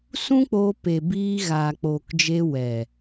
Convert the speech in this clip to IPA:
sũ˦k͡poː˧pe˨ biː˧ɣaː˨k͡poː˨k d͡ʒe˧wɛ˨

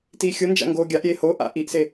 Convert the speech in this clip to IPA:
tiːxʲʊnd͡ʒa̰ ŋɡoːɡʲaʔɾʲeː hoʔa̰ ʔiʔse

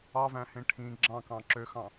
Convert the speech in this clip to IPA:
ɑvæ̃hẽ ʈʰĩ ɡ͡ǁɑ̃kɑ̃ ǁøxɑ̃

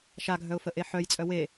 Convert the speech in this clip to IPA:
ʃaɡʱœʊ̯fəʔe ħœjt͡sʼœ we

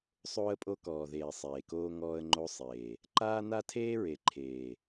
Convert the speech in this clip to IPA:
sˤoː˦ə̯pʼo˦kɔː˨ðeː˨ sˤeː˨koː˦ ŋɔː˦ə̯ŋ͡ǃo˦sˤeː˨ | ǃaː˦na˦tʰeː˦ɹe˨ ǃʰeː˨

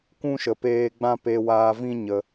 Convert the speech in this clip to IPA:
kũ˦ʃə˨peː˧ɡ͡bã˦ pe˧waː˧vĩ˦ ɲə˧

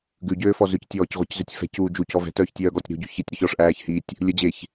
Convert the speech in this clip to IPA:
ɡʉɟøːfɔ zʉctʲɔːcʁʷiczʉtʲ fɛ̤cuː d͡ʒucɔ vɛ̤tœːçtʲœːɡɔːtʲ ɾo̤ɟʉ çitʲɾɵç ɔʂʔæːç hitʲ | lʲɵd͡ʑeç

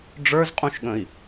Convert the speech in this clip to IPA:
ɖ͡ʐə˞zqʼũʃɠə̃i̯

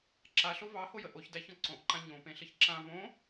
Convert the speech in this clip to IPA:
ǁaɬo vɑhojə ʔoçdæçɔ̃ ǀõʔǃã ɲõpẽɬəç ǁã võ

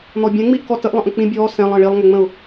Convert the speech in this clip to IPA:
n̪ɔbʲɛ̃ ŋ͡miʔkɔtəʔ lˠə̃ʔə̃k͡pĩ bʲɔː sɛ̃lˠ ə̃ːɭilˠŋɛŋ͡mə̃ʊ̯

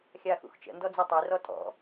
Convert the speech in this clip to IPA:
xʲaːxṵxt͡ʃə̰ ndɔd͡zitˤi rɔtʼɔ̰

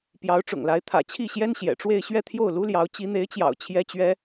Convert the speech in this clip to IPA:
pjɑ˧˥ʊ̯ʈ͡ʂʊ̰˨˩ŋla˧˥ɪ̯ t̪ʰä̰˨˩t͡ɕʰi˥˩ɕjɛ˥n ɕjɛ̰˨˩ʈ͡ʂwe˥˧ɪ̯ ɕɥɛ˥˧ t̪ʰjo˥˩ʊ̯lu˥ljɑ˧˥ʊ̯ t͡ɕi˧˥n̪e˧˥ɪ̯t͡ɕjɑ̰˨˩ʊ̯ t͡ɕʰjɛ˥t͡ɕɥɛ˥

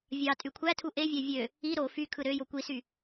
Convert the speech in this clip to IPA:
vʲɑ tʼykʷʰætʰu ʔevʲæ vʲø | i ɾo fy kʰɯɾøjo kʷisy

